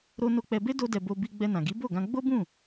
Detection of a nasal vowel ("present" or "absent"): present